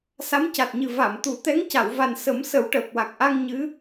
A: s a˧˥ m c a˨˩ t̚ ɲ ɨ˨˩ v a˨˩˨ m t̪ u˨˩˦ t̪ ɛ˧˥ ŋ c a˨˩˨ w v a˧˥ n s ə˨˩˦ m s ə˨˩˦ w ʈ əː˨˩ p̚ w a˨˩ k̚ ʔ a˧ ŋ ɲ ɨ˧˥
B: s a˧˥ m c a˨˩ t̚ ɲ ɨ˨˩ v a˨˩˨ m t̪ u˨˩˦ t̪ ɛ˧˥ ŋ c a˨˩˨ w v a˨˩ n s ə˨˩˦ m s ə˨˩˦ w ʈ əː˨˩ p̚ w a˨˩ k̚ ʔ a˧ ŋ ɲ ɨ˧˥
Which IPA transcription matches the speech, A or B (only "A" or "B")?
B